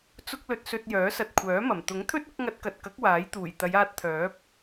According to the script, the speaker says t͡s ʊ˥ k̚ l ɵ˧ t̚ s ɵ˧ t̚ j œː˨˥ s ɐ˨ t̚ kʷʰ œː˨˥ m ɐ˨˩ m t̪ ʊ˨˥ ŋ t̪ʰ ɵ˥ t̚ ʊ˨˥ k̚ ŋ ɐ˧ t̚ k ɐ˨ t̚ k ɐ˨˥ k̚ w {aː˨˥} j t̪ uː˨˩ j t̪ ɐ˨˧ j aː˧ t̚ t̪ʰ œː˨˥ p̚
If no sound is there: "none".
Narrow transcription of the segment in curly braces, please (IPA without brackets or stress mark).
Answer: aː˨˥